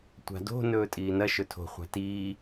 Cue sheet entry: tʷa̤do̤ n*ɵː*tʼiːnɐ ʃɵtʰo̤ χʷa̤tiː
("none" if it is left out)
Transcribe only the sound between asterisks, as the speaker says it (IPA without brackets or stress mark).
ɵː